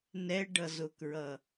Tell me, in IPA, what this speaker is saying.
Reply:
n ɛ ɖ ʌ z ʊ k ɹ ʌ

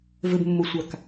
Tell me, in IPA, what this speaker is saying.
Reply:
v ɘ b mː o sʷ a k

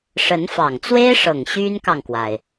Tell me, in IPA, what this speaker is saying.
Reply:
ʂ ə˧˥ n f ɑ˨˩ ŋ t͡s w e˥ ɪ̯ ʂ ɤ˨˩ ŋ ɕ y˥ n k ɑ˨ ŋ k w a˩ ɪ̯

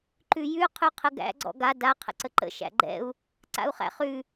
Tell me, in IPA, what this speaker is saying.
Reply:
ǃ ʉ j ʉ qʰ ʉ qʰ ə ɡ æ̰ ɡ͡ǀ ɔ̰ ɡ a d a qʰ ə̰ ǀ ə ǃ ə̰ ʃ æ̰ ɡ͡ǃ ɛ̰ u̯ | ǀ a̰ u̯ χ æ̰ χ ʉ

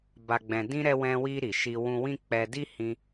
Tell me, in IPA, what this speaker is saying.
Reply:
b a˨ ɡ͡b ɛ̃˨ d ĩ˧ ɾ ɛ˧ w ɛ̃˧ w i˧ ɾ i˨ ʃ i˧ w ũ˧ w ĩ˦ k͡p ɛ˧ d i˦ h ĩ˧

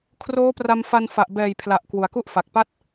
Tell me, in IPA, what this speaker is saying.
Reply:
kʰ r oː˦˥ p r a˧ m f a˧ n f a˨˩ ʔ b ɛː˨˩ j pʰ l a˨˩ ʔ k w u˨˩ a̯ k u˥˩ ʔ f a˨˩ k̚ p a˥˩ t̚

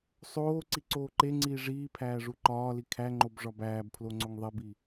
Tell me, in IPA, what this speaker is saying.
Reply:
sˤ oː ǀ i ǀ oː ǃ e ŋ͡ǀ iː ʐ iː pʰ æː ʐ u ǃ ɒː l i kʰ æ ŋ͡ǃ o b ʐ ɒ b æː b pʰ l o ŋ͡ǀ o ŋ ðˤ e b i

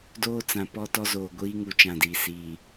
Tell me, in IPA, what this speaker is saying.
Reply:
d oː˦ t͡s ã˨ p ɔ˦ t ɔ˦ z oː˨ ɡʷ iː˦ ŋ u˨ t͡ʃ ã˦˨ d iː˨ s iː˨

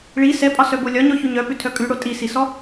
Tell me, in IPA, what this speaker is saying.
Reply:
ɭ i s ɛ pʼ ɒ s œ b o lʲ ɒ ɲ ɔ ç ʉ ɲ œ p ʉ tʰ œ kʼ ʉ ɽ o tʼ i s i s ɔ

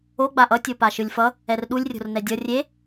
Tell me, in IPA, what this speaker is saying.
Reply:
o ɡ͡b a ʔ ʌ tʲ o p a ʃ ɯ lʲ f ʌ | ɛ r ɗ u lʲ rʲ o̤ r n ɛ dʲ ʌ rʲ e

